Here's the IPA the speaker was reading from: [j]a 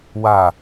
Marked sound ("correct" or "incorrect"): incorrect